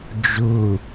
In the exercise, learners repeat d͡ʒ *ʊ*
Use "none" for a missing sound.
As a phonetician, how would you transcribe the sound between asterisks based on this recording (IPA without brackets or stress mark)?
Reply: ʊ